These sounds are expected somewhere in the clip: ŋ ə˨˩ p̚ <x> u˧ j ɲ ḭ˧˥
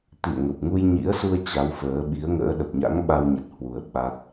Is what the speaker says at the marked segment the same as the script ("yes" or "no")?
no